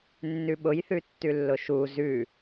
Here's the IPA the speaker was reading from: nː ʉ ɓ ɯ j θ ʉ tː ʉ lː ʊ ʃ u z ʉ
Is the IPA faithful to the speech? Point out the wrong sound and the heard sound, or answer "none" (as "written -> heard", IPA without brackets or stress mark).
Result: ɯ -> ʊ